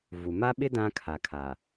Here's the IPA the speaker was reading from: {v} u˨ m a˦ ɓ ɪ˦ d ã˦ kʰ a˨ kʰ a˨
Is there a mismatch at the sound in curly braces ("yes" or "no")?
no